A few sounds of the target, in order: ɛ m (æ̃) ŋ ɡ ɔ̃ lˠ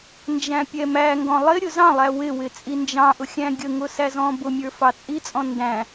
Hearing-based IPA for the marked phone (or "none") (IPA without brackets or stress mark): æ